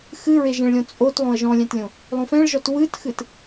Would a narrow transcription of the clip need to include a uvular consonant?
no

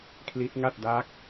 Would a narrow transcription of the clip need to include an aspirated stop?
yes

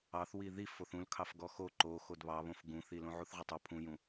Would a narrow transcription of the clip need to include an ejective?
no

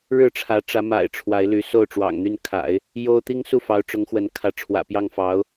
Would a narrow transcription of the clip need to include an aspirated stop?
yes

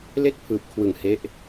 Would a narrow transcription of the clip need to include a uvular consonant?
no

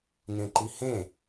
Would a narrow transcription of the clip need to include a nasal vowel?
yes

